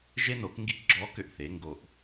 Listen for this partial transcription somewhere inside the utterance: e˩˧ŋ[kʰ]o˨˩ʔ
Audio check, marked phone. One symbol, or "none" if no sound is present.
ɡ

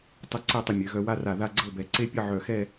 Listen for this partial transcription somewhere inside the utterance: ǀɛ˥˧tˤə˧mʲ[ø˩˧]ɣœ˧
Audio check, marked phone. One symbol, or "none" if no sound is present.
ø˩˧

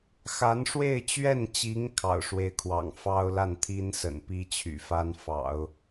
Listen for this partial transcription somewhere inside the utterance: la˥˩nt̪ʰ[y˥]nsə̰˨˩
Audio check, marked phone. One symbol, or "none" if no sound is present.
i˥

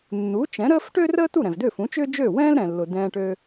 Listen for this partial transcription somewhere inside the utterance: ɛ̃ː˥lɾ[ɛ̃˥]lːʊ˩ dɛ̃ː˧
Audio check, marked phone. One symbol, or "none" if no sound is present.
ɛ̃˩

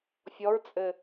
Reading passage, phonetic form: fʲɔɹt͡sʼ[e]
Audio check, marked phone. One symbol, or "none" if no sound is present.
ɘ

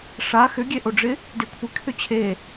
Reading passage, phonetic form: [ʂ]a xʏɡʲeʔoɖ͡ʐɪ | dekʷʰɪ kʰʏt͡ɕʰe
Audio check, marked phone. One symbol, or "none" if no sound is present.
ʂ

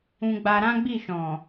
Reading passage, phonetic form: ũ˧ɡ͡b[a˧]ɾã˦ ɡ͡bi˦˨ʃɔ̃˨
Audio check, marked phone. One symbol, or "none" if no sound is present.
a˧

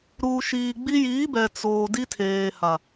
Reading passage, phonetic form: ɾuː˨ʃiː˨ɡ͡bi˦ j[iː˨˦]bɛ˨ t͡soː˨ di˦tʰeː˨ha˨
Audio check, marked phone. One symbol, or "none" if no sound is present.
iː˨˦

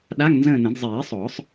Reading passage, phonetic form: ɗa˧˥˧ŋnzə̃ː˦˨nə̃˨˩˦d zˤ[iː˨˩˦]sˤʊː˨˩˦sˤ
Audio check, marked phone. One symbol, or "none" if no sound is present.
iː˨˩˦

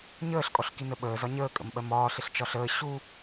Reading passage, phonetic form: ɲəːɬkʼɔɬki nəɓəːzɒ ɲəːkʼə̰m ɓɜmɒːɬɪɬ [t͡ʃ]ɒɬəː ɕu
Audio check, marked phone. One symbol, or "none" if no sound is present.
t͡ʃ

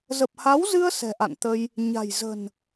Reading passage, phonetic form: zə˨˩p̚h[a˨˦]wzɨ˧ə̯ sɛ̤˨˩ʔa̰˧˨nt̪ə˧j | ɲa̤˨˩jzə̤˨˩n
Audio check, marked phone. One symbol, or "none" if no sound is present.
a˨˦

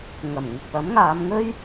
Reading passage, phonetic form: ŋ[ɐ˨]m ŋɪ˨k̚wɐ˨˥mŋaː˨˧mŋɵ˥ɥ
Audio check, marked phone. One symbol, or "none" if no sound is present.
ɐ˨˩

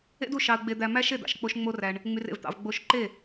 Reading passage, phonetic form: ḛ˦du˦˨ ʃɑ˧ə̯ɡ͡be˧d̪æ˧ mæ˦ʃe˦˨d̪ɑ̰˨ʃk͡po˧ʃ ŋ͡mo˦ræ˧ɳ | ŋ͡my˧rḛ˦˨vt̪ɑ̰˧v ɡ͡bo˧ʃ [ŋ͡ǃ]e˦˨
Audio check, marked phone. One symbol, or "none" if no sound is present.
ǃ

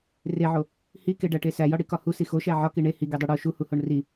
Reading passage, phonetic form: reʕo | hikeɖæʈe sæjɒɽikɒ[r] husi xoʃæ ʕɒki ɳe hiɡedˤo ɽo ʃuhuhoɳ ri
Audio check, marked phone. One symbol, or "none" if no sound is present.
none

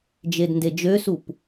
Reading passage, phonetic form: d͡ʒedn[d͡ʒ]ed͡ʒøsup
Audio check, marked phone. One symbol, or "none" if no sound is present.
d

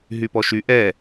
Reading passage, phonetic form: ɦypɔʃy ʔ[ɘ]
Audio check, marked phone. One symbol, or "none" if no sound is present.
ɛ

